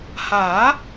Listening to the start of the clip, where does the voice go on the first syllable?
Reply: rising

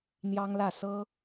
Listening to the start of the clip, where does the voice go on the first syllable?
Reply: high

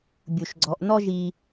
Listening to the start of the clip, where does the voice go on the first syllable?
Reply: low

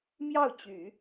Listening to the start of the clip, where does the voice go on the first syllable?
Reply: falling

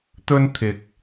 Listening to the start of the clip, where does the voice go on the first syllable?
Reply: high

